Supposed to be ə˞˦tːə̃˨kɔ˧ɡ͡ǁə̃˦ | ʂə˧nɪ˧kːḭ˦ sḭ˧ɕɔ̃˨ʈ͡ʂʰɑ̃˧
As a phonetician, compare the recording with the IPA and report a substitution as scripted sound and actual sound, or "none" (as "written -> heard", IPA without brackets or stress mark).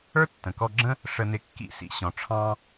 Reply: none